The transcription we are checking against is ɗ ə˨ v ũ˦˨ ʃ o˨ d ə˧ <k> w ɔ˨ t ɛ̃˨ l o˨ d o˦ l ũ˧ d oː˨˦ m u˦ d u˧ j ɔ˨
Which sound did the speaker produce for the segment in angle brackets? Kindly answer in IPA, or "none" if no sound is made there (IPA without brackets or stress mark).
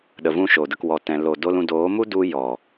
k